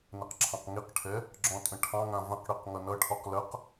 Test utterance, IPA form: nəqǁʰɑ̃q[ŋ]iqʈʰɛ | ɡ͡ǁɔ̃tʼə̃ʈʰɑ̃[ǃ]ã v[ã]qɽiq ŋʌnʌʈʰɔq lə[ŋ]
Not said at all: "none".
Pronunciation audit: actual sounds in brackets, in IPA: ŋ, ŋ, ə̃, q

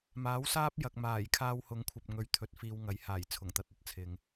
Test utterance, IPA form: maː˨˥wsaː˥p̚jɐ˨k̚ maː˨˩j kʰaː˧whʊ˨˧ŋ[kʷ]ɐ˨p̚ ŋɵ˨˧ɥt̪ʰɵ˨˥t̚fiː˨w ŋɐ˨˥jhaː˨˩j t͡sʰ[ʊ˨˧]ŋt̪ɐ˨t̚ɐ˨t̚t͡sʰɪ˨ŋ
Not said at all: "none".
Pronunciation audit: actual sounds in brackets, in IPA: kʷʰ, ʊ˨˩

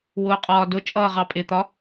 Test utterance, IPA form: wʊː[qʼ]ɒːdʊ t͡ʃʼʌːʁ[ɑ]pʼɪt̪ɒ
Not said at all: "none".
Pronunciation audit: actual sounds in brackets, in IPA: qʼ, ɑ

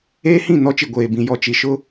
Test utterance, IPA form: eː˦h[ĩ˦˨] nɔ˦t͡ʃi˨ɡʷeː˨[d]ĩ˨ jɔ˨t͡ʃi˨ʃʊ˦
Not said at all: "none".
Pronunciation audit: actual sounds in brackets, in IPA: ĩ˦˨, b

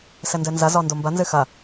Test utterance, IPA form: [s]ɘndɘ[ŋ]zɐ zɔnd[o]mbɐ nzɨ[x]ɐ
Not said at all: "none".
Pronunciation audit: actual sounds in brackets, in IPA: s, n, o, x

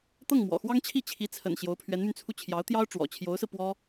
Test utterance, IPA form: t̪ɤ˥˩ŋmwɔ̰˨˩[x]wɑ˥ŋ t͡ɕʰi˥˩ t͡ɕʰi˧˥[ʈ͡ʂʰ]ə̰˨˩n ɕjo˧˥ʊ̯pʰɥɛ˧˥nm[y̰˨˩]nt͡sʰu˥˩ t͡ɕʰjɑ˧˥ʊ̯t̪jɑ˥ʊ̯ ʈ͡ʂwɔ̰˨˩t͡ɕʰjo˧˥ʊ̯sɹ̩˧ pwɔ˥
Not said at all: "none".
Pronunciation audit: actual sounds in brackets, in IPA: x, t͡sʰ, y˧

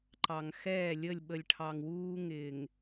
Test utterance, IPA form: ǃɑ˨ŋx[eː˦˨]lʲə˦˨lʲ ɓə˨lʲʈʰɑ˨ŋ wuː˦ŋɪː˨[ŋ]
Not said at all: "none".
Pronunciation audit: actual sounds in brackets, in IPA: ɛː˦˨, ŋ

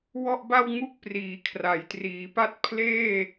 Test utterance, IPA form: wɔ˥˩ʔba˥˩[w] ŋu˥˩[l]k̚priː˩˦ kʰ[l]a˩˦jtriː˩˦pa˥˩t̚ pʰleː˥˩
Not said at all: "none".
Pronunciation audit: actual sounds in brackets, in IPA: w, none, r

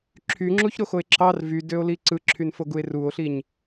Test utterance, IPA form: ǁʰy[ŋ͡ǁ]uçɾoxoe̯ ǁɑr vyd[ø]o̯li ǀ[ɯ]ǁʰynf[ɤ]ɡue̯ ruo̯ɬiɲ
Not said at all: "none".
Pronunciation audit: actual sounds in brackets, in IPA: ŋ͡ǁ, ø, ɯ, o

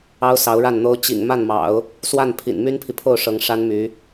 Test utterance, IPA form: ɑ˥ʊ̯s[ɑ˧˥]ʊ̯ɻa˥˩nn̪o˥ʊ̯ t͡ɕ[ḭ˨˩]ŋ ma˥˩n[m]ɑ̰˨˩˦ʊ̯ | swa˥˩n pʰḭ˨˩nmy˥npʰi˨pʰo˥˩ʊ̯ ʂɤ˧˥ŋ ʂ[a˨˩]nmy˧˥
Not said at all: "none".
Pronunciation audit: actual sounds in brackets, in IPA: ɑ˧˥, ḭ˨˩, m, a˥

